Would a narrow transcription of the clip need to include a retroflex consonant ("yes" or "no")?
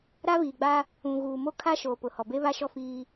no